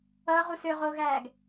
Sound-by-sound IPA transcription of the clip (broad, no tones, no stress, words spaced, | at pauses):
ʌːʁu søʁoːɣæːɡ